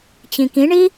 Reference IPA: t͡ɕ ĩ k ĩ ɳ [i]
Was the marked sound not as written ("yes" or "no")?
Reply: no